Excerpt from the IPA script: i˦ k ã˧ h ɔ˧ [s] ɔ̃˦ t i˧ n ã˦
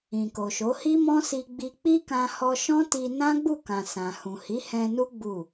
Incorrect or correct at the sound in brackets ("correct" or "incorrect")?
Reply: incorrect